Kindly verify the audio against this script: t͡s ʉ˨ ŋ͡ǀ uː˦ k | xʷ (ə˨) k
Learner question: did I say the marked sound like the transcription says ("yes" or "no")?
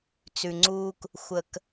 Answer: yes